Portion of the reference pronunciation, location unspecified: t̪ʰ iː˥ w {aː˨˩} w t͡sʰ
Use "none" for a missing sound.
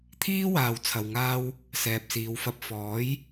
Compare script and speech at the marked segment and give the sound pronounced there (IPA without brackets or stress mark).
aː˧